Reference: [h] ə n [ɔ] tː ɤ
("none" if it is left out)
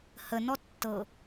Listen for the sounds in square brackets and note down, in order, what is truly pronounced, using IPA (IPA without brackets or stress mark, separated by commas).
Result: h, ɔ